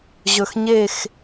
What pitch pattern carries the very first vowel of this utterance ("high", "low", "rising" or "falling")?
low